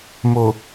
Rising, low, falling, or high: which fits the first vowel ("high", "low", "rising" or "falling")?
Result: low